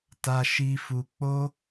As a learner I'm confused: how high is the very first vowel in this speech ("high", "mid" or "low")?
low